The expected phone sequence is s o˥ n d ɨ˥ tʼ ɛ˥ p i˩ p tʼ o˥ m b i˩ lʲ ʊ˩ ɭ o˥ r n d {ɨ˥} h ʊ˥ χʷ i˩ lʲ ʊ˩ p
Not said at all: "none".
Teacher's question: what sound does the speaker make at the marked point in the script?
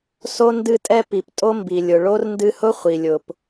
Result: ɨ˥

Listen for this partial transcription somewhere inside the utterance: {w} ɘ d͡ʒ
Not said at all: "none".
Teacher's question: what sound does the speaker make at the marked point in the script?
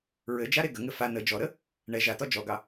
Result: ɹ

